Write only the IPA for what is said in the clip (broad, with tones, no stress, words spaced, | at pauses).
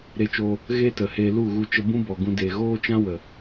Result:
ɾe˧t͡ʃoː˧ | ɣeː˦tə˨ he˧ lu˦˨ɣu˧t͡ʃə˧ bũ˦bɔ˨ ɡũ˧ deː˨ɣoː˦t͡ʃã˦ wə˨